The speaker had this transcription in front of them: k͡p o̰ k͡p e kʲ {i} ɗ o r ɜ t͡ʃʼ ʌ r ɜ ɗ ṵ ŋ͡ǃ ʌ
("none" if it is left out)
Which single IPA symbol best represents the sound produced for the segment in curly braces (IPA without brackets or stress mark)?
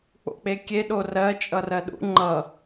e